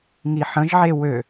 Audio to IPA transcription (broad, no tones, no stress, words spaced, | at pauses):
ŋiħə̃ʒʕe wø